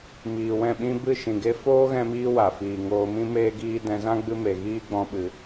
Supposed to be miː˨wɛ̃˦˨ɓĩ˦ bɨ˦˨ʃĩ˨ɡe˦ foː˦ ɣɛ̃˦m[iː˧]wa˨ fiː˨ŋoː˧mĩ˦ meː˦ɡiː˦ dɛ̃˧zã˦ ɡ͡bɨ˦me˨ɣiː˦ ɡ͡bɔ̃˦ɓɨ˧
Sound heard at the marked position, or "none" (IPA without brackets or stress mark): iː˦